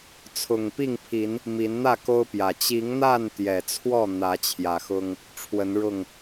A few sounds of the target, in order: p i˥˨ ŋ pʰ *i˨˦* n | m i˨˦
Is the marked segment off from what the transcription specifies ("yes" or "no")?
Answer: no